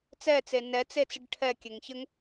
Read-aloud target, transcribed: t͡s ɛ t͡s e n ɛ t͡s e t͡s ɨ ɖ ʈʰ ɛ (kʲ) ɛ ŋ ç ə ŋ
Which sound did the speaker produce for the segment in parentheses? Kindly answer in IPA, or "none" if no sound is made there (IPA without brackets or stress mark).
kʲ